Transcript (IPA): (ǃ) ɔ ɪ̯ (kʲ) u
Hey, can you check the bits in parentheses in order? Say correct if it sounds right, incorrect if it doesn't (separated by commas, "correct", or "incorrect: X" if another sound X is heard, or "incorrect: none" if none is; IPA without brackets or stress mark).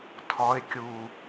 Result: incorrect: tʰ, correct